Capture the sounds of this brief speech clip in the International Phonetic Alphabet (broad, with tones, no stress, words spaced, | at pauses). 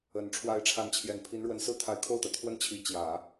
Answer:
ə˨˩n ʈ͡ʂʰwa˧˥ɪ̯ʈ͡ʂʰa˧˥nt͡ɕʰjɛ˨˩n pʰi˧˥nɻwə˧˥nsɹ̩˥ t̪ʰa˧˥ɪ̯kʰo˥˩ʊ̯t̪ä˩ t̪ʰwə˥˩nt͡ɕʰi˧˥ t͡ɕjä˨˩˦